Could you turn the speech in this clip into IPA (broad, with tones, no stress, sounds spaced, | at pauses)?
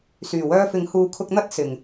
s yː˨˩ w œː˧ f ɪ˨ ŋ h uː˨ kʰ ʊ˧ k̚ n̪ ɐ˥ t̚ s ɪ˨˩ ŋ